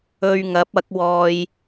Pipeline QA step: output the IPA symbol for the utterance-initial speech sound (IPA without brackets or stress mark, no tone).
ɵ